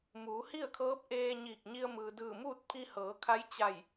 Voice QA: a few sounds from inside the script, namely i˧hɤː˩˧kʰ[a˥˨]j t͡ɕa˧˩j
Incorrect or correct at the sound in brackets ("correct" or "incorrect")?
incorrect